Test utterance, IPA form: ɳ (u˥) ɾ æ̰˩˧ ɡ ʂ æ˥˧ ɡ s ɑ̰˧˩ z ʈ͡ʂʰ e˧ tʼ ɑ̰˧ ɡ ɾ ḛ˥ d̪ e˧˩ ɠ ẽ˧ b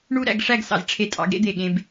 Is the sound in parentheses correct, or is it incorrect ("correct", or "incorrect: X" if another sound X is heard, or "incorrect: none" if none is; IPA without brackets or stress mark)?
correct